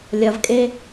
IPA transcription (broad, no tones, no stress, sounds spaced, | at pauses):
lʲ ɐ v kʼ e